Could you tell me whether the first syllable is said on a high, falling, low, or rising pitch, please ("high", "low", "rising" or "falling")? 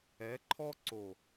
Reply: rising